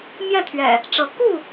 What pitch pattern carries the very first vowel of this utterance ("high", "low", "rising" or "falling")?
falling